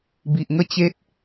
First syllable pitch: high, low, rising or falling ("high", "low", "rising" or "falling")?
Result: low